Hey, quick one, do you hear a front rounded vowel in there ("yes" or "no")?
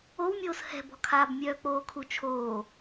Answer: yes